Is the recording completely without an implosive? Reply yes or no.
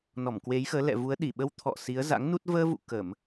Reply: no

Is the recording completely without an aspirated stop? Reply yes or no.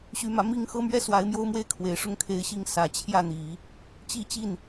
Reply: no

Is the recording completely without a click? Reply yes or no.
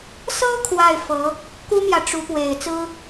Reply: yes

